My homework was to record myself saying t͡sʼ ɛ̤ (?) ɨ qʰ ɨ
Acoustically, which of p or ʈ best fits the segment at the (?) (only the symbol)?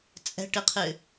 ʈ